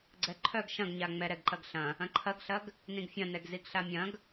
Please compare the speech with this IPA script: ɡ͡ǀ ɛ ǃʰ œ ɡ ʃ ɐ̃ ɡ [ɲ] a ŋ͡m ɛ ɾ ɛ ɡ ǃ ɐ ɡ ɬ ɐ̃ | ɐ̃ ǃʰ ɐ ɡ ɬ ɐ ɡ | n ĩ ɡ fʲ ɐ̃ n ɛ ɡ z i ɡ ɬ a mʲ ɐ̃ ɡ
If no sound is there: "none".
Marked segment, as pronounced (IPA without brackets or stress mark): ɲ